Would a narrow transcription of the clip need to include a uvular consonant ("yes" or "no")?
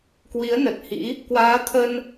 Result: no